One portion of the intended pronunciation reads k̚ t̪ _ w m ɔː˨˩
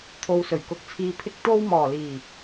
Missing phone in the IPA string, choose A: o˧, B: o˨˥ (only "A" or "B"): A